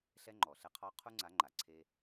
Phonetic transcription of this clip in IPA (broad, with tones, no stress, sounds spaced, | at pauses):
ɬ ɛ˦ ŋ͡ǃ ɔ˨ ɬ ɛ˦ qʰ ɔ˦ qʰ u˦ ŋ͡ǀ a˨˦ ŋ͡ǃ a˨ ǀʰ e˦